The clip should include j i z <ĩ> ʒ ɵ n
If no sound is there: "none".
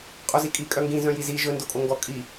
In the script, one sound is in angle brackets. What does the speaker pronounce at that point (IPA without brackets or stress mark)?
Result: i